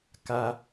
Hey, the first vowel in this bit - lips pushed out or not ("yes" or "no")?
no